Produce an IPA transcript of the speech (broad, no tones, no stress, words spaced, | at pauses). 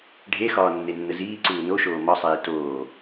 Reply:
ɖʱexɒː nːenːəziːǀuː noʃoː mɒsˤeː toː